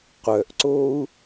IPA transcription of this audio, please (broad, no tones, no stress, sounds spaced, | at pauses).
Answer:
qʷ œ ʔ ǀ o u̯